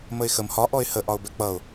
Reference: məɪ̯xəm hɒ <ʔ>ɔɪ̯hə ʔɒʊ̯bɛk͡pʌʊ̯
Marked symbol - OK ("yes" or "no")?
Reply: yes